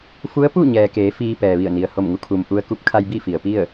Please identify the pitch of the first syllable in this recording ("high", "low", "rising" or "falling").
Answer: rising